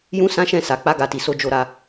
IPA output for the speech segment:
j ũ˦ s ã˦ ʃ ɛ̃˦˨ s a˨ k͡p a˧ ɡ a˧ t i˨ s o˨˦ d͡ʒ o˧ ɾ a˧

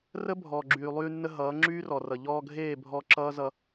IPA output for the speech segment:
r ə˦ bʱ ɔː˨ ɡ͡ǁ yː˨ lˠ yː˧ nː ə˧ ɦ ʌː˨˦ ŋ͡ǁ yː˦ r ɔ˨ r ʌ˨ ʎ ɔː˧ ɡʱ eː˦˨ bʱ ɔ˧ ǁ ʌː˦ z ʌ˧

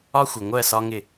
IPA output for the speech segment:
ɒ˦ xʷ ɪ˨ ŋʷ ɜ˦˨ s ɒ˦ ŋ ɪ˦˨

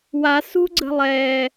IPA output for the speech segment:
w a s ṳ ɡ͡ǀ ə̤ lˠ ɛː

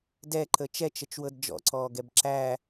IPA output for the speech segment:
d ɛ ǃ ə t͡ʃ ɛ t͡ʃ ə t͡ʃ w ɤ d d͡ʒ ɔ̰ ǀ ɔː ɡ ɛ b ǁ æ

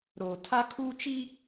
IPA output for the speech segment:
ɾ oː˨ tʰ a˦ kʰ uː˦ t͡ʃ i˦

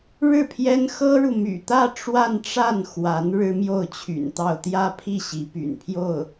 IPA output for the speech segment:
ɻ ɻ̩˥˩ pʰ j ɛ˥ n x ɤ˥ ɻ u˨ m y̰˨˩ t̪ ä˥˧ ʈ͡ʂ w a˥˧ n ʈ͡ʂ a˥˩ n x w a˧˥ n ɻ ɻ̩˥ m j o˥˩ ʊ̯ t͡ɕʰ y̰˨˩ n t̪ ɑ˥˧ ʊ̯ t̪ j ä˥˧ pʰ i˥˩ ɕ i˧˥ p y̰˨˩ n pʰ j o˥˩ ʊ̯

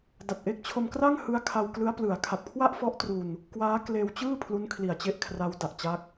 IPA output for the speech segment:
d a˨˩ t̚ ʔ e˦˥ k̚ t͡ɕʰ o˧ m k r a˥˩ ŋ h ɯ˦˥ a̯ kʰ a˧ w k l ɯ˦˥ a̯ p l ɯ˩˦ a̯ kʰ a˨˩ p̚ kʰ w a˥˩ ʔ f ɔ˦˥ ʔ t r u˧ n | k w aː˦˥ k l eː˧ w t͡ɕ ɯː˥˩ pʰ l u˦˥ n kʰ l i˨˩ a̯ t͡ɕ e˦˥ ʔ kʰ r a˦˥ w d a˨˩ ʔ t͡ɕ a˦˥ k̚

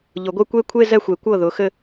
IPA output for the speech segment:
ʎ ʊ˨˩˦ ɡʷ e˥˧ kʷ e˥˧ kʷʰ e˥˧ z ɛ˥˩ xʷ e˨˩˦ kʷ ɤ˥˩ ð ʊ˨˥ x ɘ˥˧

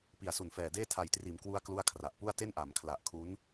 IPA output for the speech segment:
p i˨˩ a̯ s u˨˩ n f ɛː˨˩ d eː˥˩ tʰ a˨˩ j t r iː˩˦ m k w u˦˥ a̯ k l u˥˩ a̯ kʰ r a˨˩ ʔ p u˥˩ a̯ t e˥˩ n ʔ a˩˦ m kʰ l a˨˩ ʔ kʰ u˦˥ n

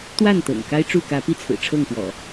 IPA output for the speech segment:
t̪ w a˥˨ n t̪ ɤ̰˨˩ ŋ k a˦ ɪ̯ ʈ͡ʂ u˥˨ k ä˨˦ p i˥˨ t͡sʰ ɹ̩˨˩ ʈ͡ʂʰ ɤ˥˨ ŋ p w ɔ̰˨˩

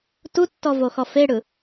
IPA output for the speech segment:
t u tː ɔ v o x ɔ f e ɽ ɯ

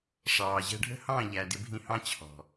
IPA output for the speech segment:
ʂ ɑː˨ ʑ ɛ̤˦ ɖʱ ə̤˦ h ɑ̃˦˨ ʎ æ˨ d ɪ˧ bʱ ĩ˧ h ɑ̃˦ t͡ɕʰ ɔ̤˨

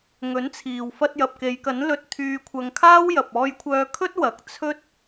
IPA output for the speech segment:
ŋ ɵ˨˥ n t͡sʰ iː˨ w f ɐ˧ t̚ j ɐ˨ p̚ k e˨˧ j k ɐ˨˥ n l ɵ˧ t̚ t̪ʰ yː˧ kʷʰ ɐ˧ ŋ kʰ aː˥ w j ɐ˨ p̚ ɔː˧ j kʷʰ œː˧ kʰ ɵ˥ t̚ w ɐ˨˥ k̚ t͡sʰ ɵ˥ t̚

